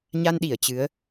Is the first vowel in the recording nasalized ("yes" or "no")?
no